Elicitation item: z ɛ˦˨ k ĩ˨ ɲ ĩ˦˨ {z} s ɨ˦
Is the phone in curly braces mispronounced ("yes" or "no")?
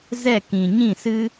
yes